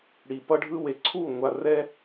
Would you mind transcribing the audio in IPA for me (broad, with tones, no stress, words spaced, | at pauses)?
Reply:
ɽi˨ pʌ˧ɖʱɯ˧we˨ ǀʰu˦˨ ŋʷa˧ rɛ˦